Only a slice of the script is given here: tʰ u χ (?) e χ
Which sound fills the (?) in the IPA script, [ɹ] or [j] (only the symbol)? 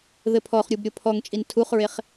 ɹ